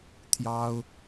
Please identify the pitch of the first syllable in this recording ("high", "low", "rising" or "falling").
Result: high